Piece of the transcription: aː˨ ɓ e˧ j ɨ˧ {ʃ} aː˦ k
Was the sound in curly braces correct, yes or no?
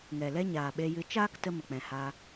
no